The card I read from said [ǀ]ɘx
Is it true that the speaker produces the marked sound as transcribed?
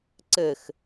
yes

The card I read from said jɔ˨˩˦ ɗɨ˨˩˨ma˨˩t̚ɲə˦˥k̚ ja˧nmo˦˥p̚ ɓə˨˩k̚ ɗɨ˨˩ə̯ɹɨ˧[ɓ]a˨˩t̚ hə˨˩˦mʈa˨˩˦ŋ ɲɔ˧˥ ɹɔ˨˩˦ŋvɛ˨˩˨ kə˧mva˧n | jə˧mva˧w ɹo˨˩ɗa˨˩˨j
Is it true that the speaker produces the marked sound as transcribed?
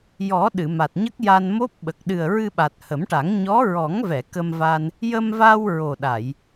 yes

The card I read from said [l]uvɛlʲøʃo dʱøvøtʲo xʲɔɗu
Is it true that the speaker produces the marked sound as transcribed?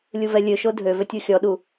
no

